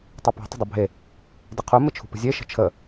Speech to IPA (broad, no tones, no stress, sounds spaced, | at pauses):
tˤ u p e̤ tˤ ə̤ dˤ u bʱ e | d ɪ qʰ u m ɪ t͡ʃʰ ṳ p ə̤ zʲ e ʃ ə̤ t͡ʃʰ ə